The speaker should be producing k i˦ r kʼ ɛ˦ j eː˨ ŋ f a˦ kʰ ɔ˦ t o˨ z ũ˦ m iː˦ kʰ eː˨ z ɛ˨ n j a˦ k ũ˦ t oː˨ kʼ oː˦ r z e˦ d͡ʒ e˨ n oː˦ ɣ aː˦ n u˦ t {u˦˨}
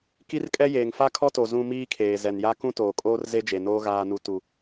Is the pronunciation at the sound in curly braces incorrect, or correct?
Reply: incorrect